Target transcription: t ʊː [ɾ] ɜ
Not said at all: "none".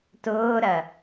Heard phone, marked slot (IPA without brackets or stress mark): ɾ